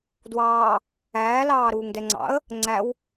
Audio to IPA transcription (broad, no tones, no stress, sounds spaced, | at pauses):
d w ɑː | æː l ɑː ɾ uː ŋ d ɛ ŋ͡ǀ ɑ̰ ə̯ | ŋ͡ǀ æ w